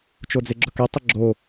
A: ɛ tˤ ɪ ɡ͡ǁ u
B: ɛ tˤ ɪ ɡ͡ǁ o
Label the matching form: B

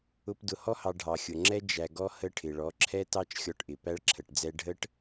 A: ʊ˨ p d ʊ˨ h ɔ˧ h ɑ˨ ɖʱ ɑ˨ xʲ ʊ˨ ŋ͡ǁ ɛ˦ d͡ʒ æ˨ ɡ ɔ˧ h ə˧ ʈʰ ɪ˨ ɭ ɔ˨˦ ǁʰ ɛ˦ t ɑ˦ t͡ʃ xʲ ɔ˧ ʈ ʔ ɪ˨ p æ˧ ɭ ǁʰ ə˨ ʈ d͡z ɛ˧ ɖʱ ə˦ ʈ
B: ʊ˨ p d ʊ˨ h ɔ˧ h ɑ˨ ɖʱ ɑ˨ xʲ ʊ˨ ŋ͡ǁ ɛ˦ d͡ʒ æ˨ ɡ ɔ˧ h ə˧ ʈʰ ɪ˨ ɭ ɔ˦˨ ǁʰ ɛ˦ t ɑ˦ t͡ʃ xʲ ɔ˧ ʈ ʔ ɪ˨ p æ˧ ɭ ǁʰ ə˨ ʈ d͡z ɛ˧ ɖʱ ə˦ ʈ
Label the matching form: A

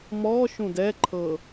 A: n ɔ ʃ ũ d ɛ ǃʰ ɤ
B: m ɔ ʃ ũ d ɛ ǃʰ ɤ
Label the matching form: B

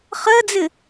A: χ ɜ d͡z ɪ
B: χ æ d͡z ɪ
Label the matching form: A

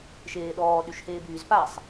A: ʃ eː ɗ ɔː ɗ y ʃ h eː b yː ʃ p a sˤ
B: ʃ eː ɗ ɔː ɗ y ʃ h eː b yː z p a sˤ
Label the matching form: B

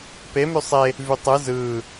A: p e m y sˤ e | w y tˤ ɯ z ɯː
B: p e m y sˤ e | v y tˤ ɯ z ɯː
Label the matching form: B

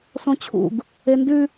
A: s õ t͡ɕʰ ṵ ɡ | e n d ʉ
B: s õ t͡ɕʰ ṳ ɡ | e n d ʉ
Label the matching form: A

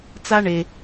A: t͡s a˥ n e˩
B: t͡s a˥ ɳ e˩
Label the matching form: B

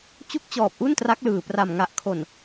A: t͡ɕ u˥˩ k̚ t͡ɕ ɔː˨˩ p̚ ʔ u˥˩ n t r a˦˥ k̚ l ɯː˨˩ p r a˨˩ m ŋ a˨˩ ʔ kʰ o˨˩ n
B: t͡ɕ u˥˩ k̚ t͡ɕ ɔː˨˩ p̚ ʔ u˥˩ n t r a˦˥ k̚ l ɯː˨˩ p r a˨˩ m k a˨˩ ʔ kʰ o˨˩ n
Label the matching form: A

